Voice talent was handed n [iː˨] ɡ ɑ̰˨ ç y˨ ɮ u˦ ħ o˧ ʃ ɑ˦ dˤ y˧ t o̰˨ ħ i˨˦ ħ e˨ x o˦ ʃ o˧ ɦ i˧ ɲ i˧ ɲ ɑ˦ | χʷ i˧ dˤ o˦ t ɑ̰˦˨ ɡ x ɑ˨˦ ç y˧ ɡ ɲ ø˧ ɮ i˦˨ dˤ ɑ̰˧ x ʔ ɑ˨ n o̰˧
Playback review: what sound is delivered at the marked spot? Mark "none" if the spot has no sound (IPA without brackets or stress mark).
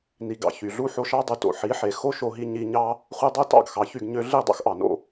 i˨